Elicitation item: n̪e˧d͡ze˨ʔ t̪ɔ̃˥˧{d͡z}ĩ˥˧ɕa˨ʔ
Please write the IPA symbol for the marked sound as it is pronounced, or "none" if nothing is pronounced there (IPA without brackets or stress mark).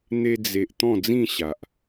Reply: d͡z